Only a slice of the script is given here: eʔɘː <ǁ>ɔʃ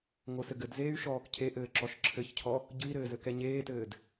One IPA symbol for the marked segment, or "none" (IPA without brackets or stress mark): ǁ